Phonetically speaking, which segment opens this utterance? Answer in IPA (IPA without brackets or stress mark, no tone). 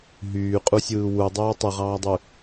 ɦ